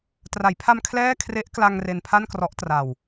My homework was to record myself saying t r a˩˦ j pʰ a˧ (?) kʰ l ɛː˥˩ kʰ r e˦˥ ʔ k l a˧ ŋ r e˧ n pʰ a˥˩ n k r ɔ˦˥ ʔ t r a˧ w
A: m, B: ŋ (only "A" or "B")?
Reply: A